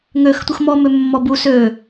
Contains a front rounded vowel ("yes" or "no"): yes